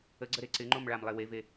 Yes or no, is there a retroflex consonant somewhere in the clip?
yes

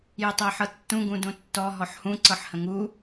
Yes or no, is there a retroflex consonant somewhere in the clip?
no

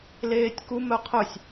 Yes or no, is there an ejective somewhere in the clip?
no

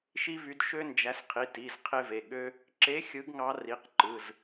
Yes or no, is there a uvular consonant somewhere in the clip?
yes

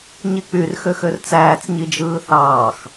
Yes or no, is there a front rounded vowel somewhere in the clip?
yes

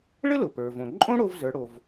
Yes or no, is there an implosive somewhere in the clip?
no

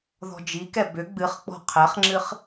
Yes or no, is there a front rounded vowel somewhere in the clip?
yes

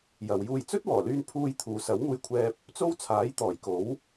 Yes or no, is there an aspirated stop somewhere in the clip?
yes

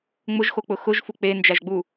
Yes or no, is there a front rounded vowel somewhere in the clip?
no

